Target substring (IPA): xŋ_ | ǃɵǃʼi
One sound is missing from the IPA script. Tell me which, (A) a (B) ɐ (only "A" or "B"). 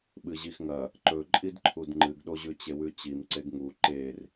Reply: B